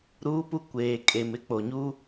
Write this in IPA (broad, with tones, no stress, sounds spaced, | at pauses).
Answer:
ɾ uː˦ p u˦ kʷ eː˨ kʼ e˨ m ɪ˦ k͡p o˨ ɲ u˦